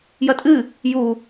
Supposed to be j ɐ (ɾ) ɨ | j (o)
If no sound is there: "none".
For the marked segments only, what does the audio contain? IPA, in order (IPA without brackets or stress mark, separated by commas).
tʼ, u